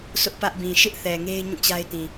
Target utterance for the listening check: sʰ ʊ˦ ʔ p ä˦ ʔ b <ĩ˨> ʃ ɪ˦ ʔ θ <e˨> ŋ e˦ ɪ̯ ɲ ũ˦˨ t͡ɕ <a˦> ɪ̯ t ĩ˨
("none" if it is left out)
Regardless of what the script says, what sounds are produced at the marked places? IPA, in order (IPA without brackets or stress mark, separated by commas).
ĩ˨, ɛ˨, a˦